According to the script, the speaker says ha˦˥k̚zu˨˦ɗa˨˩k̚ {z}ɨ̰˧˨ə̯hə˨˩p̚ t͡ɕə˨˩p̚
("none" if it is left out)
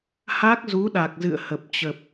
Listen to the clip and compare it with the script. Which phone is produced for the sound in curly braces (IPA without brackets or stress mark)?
z